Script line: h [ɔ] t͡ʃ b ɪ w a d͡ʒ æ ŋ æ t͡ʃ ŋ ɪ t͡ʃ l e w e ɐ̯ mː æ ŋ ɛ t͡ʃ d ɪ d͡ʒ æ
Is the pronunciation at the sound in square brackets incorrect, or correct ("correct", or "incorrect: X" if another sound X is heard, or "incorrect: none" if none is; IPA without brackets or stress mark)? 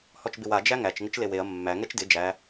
correct